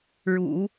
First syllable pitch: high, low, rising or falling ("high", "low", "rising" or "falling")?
low